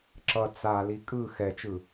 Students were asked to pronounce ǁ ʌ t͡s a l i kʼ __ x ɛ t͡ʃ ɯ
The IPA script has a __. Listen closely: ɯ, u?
ɯ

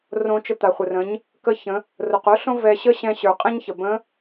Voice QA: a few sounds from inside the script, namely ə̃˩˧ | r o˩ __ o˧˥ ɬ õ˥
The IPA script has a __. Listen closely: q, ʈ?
q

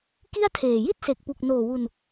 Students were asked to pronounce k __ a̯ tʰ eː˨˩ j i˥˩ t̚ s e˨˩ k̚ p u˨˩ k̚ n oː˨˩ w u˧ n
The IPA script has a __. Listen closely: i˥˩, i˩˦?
i˥˩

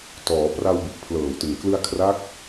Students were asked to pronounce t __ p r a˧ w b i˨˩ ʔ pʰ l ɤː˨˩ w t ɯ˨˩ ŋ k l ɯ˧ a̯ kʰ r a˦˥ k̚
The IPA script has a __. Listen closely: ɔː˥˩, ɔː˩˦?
ɔː˩˦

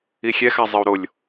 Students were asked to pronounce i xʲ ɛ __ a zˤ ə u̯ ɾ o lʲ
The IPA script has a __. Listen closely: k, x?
x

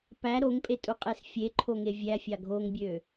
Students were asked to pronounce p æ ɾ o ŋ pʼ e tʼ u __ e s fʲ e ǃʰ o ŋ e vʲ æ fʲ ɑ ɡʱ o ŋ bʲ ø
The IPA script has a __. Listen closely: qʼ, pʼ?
qʼ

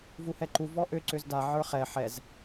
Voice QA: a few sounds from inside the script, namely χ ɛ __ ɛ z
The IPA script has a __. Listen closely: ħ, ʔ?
ħ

